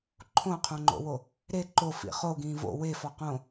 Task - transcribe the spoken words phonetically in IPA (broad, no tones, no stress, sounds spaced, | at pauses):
ǃʰ õ qʰ õ ŋ͡ǃ o̰ w o | ɾ e ǃ o f ḭ χ o ɡ ĩː v o̰ w e f ɒ q õ